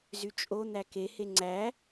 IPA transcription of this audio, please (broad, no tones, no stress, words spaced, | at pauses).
zyt͡ʃʼo n̪æke heŋ͡ǀæ